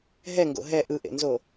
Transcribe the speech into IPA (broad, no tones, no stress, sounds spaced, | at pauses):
ɦ ɛ ŋ ɡ o̰ ɦ ɛ ʔ ɯ ʔ ḛ n z o